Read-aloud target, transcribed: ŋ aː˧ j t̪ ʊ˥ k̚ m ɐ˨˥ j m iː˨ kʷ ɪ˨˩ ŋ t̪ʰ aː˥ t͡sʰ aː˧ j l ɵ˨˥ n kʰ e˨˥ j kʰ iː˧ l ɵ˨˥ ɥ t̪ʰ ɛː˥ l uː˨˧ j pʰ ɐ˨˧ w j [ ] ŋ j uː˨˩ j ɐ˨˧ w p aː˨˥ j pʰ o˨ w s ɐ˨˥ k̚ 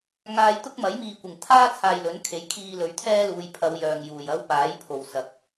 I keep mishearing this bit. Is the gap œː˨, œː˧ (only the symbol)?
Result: œː˨